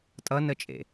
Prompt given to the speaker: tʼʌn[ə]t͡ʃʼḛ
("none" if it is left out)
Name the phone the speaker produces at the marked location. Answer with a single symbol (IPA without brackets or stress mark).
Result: ə